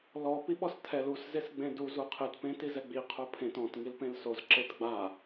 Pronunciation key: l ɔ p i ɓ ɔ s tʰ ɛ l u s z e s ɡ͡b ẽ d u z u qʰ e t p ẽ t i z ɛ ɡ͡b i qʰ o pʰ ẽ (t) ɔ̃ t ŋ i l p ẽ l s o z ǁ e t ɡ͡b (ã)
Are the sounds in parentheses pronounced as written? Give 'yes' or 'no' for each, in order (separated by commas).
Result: yes, no